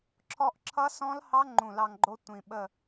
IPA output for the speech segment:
ǁʰɔ˧ʔ ǁʰʌ˦˥sɔ̃˦˥lhɑ˦˥ ŋ͡ǃũ˧˩lɑ˧ŋɡ͡ǃo˦˥ tʷĩ˩ɓə˧˩

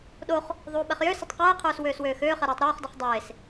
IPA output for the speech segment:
ɗoχ | ðˤuːɓɛχjøsətˤ qɛːqʰøːs wøːswøːxøːχɛ ɾɛːtˤɾoːχdɤχ dˤeːs

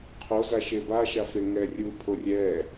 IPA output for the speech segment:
qʰoza ʃebaʃa feŋɛrʲupʰo rʲɛ

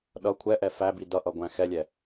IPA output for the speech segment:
ɗʌ kʷʰɛʔɛ fæbi dʌʔʌɡʷæ̃ xɛlʲɛ

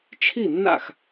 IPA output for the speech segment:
t͡ʃʰi˥˩nːa̰˥˩x

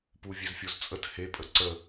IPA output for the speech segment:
puvʲezfʲozt͡sʼət he pʼəǀə

